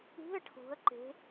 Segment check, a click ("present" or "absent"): present